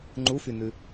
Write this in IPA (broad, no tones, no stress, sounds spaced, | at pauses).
ŋ͡ǃ u f y n ʉ